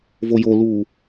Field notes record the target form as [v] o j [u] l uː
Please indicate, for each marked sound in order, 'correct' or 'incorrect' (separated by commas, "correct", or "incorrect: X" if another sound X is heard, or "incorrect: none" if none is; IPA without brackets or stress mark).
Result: correct, incorrect: o